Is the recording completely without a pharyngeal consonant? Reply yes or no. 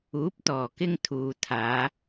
yes